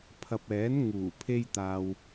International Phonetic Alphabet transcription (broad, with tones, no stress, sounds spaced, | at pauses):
pʰ ɐ˨ p̚ ɛː˨˥ n ŋ uː˨˩ pʰ e˥ j t̪ aː˧ w